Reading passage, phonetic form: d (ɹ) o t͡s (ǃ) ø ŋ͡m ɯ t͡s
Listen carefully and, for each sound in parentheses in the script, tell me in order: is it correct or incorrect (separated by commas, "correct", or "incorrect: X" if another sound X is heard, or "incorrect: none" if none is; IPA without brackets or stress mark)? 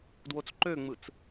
incorrect: w, correct